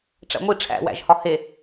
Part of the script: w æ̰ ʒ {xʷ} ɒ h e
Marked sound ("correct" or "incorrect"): incorrect